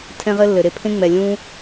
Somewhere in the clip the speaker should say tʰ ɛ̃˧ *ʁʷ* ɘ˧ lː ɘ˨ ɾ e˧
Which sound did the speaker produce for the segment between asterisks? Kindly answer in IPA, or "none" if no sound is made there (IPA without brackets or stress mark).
ʁ